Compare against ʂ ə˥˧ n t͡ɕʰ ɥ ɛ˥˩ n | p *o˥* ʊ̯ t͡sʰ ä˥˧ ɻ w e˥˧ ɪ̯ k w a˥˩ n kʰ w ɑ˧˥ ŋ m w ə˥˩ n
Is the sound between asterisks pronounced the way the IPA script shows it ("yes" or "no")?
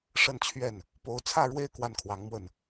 no